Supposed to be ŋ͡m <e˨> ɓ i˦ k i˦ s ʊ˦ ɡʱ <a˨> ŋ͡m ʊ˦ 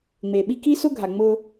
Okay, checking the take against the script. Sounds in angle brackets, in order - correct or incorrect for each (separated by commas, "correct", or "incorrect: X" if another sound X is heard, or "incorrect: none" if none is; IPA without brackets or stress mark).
correct, correct